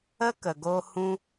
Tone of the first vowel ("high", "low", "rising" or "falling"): high